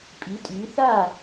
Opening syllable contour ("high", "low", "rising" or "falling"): rising